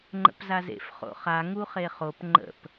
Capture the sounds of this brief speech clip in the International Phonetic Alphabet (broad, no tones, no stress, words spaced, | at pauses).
ŋ͡ǃə̰pzazḛf χo̰χa ŋuχeχop ŋ͡ǃə̰p